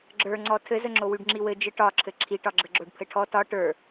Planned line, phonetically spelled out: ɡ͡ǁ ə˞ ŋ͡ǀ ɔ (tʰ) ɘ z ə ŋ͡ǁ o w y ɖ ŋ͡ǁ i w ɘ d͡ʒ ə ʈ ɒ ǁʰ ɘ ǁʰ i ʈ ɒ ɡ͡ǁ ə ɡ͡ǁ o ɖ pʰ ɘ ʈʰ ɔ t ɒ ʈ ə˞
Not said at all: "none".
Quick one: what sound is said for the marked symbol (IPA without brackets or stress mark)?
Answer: tʰ